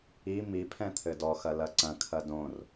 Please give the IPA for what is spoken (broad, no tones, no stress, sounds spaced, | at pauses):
i m i pʰ ɛ̃ t̪ʰ ɘ d ɔ x ɐ l ɐ ǀ ɐ̃ kʰ ɐ d õ r